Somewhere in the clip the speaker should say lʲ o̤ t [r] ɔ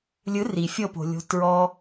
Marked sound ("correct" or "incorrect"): incorrect